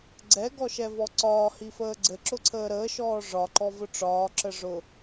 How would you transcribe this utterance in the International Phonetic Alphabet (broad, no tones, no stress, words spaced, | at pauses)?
ɡ͡ǀɛɡɔʃɛvɔ ǀɒːhifəː ɡ͡ǀɘǁʊǀʰəː ɾəːʃɔː ʐɒǃɔvʊ ʈ͡ʂɒːǁə ʐʊ